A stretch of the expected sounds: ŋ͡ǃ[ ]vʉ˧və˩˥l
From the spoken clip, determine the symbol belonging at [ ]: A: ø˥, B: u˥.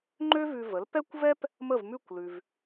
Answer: A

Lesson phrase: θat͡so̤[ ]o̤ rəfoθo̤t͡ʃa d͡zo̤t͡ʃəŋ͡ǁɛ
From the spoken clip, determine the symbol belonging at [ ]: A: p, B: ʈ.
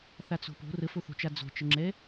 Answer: A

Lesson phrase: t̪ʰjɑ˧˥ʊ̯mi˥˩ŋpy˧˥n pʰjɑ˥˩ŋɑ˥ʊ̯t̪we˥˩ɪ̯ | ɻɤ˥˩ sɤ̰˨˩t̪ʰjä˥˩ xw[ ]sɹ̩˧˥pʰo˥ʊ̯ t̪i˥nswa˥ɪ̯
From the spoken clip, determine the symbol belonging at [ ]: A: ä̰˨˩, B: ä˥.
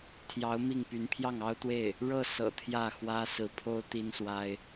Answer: B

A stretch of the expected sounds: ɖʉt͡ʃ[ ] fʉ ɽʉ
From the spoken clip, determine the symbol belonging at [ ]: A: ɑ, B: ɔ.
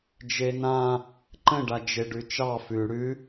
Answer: A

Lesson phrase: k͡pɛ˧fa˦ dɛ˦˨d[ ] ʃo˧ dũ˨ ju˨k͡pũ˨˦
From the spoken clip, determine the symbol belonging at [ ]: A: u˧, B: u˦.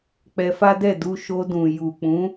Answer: A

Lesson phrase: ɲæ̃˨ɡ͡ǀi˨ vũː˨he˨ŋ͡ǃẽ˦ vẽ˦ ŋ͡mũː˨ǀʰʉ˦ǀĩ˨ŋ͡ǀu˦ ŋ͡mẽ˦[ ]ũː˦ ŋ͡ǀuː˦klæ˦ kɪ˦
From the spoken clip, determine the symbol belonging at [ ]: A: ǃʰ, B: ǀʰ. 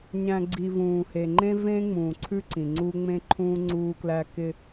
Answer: A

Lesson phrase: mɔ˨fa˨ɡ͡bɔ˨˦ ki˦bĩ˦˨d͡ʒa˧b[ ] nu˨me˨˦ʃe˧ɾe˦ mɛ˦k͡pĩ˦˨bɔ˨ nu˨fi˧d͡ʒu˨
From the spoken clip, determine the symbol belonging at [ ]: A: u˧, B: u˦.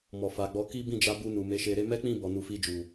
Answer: A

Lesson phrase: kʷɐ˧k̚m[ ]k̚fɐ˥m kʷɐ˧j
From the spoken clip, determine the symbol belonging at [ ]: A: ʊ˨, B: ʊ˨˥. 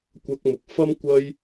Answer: A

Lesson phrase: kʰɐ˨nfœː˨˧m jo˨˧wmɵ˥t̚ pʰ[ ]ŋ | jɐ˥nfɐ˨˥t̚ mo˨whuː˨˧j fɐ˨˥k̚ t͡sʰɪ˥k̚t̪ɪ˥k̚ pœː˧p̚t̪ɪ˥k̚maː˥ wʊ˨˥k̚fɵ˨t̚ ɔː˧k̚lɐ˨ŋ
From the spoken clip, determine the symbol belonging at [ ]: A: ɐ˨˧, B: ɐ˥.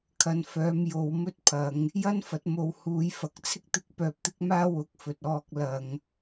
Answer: A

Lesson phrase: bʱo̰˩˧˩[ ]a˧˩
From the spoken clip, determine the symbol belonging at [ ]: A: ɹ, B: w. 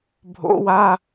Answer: B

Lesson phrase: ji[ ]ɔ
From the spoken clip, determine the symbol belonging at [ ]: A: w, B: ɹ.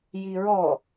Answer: B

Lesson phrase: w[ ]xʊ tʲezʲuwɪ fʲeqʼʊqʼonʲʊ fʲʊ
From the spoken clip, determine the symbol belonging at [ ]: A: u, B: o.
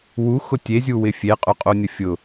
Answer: A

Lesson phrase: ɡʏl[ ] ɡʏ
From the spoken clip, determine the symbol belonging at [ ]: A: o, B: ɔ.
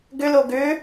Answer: A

